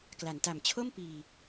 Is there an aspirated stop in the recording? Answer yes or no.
yes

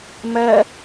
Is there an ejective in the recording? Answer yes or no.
no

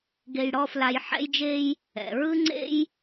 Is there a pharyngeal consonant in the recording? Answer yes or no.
yes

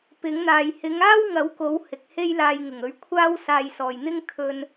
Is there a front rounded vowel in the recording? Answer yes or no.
no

